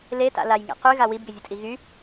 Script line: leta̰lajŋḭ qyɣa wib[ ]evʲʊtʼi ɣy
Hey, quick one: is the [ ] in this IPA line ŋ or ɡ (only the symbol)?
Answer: ɡ